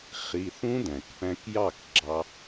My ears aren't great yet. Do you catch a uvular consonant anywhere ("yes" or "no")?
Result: yes